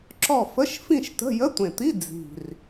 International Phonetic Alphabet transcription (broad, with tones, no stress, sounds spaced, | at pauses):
ǁ ɔ˥˨ f ə˧˥˧ ʃ f ĩ˥˨ ʃ t ə̤˧˥˧ j ə˧˥˧ tʷ ẽ˨˩ t̪ i˧˥˧ d͡z i̤˨˩ r